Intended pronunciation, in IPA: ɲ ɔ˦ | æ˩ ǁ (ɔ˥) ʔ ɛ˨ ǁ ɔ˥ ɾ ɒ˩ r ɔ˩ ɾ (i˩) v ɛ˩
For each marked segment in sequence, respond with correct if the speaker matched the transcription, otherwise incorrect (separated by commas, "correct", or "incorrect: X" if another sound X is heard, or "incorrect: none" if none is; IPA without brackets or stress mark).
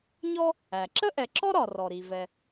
incorrect: ə˥, correct